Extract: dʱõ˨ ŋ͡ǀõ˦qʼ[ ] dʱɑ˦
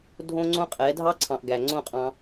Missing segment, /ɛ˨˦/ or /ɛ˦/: ɛ˨˦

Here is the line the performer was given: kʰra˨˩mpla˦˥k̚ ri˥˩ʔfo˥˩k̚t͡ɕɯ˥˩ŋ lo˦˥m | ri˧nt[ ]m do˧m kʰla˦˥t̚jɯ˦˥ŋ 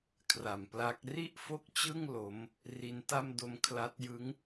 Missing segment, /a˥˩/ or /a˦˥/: a˥˩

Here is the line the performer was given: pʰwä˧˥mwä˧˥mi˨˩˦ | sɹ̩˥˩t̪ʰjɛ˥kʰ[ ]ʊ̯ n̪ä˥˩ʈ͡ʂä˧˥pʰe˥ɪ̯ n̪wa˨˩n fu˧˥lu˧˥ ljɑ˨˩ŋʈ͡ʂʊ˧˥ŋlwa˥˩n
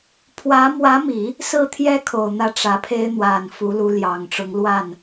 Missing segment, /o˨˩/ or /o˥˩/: o˨˩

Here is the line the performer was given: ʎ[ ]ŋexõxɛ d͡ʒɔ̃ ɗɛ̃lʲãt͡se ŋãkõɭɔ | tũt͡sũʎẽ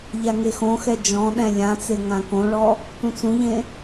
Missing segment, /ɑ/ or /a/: a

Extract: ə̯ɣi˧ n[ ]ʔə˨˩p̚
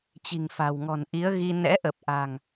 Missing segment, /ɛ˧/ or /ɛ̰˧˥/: ɛ̰˧˥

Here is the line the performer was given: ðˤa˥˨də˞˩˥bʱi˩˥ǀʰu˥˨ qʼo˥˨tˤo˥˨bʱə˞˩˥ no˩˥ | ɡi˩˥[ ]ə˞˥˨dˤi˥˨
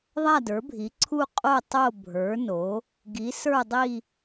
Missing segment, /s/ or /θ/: s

